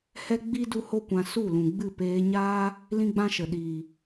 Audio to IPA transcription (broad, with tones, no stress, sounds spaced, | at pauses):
h ɛ˦ ɡ͡b i˦ d u˦ h o˦ kʷ ã˧ s u˦˨ l ũ˨ ɡ͡b ɨ˦˨ p eː˧ ɲ aː˦ | l ĩ˦ ɡ͡b ã˦ ʃ ə˨ ɗ iː˨